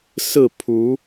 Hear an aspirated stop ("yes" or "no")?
yes